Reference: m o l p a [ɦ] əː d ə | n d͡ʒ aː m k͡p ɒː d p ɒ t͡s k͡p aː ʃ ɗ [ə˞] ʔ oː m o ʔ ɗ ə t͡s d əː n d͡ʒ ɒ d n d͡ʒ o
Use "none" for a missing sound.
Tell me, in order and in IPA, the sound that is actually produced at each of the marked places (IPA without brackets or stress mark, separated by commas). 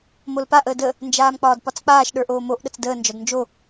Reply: ʔ, ə˞